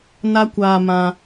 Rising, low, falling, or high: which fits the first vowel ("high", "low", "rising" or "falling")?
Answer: high